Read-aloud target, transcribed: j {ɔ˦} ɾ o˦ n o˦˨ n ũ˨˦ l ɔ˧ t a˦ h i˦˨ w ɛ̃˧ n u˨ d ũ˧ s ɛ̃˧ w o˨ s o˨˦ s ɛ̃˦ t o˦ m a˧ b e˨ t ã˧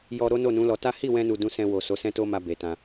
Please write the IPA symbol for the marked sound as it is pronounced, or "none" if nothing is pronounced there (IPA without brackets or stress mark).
ɔ˧